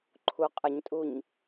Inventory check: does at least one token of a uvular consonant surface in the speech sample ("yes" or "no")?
yes